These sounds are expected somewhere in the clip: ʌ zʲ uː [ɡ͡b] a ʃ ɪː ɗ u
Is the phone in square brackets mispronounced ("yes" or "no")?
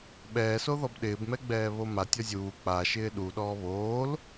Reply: yes